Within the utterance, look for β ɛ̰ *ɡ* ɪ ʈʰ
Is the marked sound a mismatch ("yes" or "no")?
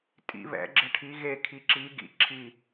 yes